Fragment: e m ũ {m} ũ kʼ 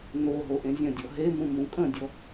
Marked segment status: correct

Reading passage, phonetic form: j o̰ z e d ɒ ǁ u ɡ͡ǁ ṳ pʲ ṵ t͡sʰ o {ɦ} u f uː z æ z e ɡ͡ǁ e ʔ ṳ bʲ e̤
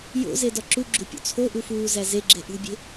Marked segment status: incorrect: ʔ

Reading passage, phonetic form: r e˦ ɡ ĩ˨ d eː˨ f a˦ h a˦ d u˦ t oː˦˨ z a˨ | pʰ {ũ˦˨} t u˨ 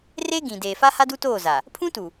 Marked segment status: incorrect: ũ˦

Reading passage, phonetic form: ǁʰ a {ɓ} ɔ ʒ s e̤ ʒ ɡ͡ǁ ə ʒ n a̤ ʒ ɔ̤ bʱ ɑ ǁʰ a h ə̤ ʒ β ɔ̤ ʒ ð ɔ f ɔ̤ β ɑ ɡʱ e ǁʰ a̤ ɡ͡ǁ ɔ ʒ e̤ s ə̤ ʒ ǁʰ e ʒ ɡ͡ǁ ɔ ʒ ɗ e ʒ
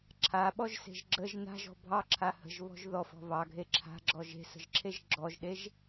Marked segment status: correct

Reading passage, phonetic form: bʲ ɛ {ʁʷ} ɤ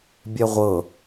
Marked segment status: correct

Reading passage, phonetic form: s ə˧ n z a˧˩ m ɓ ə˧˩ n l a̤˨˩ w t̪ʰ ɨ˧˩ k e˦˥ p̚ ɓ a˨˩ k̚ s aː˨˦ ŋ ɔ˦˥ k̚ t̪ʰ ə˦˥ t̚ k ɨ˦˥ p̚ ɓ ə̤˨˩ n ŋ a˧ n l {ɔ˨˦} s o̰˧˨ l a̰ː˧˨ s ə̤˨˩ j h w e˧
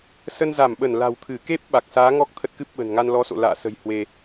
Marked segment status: correct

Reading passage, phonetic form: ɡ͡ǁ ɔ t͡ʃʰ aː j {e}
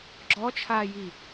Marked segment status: incorrect: i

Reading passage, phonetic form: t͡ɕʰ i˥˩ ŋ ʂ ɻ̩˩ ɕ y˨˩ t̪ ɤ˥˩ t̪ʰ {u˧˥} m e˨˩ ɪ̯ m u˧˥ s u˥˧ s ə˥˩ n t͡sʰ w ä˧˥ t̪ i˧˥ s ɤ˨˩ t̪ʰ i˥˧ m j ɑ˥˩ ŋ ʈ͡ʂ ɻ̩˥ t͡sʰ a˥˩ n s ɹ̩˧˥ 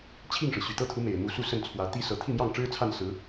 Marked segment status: correct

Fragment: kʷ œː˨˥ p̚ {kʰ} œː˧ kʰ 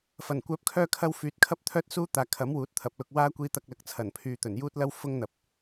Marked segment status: correct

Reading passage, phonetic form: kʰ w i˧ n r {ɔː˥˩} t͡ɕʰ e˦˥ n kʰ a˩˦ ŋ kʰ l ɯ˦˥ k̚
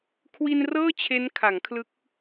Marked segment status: incorrect: ɤː˥˩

